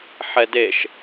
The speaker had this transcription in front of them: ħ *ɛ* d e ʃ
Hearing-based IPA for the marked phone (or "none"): ɛ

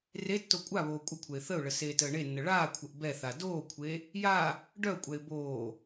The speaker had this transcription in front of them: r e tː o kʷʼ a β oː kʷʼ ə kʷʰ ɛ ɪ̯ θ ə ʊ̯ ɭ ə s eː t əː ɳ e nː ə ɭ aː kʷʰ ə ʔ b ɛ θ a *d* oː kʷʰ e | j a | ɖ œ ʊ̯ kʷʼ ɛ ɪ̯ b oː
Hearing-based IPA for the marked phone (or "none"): d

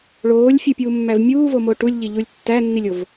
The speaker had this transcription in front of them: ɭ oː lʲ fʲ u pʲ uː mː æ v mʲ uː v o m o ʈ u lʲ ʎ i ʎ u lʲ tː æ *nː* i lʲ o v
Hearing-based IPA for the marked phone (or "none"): nː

